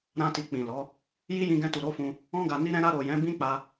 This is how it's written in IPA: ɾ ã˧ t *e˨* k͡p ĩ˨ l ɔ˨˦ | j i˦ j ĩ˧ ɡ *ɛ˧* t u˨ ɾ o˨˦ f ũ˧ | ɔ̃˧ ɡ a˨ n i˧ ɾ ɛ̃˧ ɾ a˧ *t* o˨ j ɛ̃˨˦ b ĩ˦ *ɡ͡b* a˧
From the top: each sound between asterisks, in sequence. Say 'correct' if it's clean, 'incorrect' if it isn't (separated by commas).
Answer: incorrect, incorrect, incorrect, incorrect